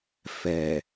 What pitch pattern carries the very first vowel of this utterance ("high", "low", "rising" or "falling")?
low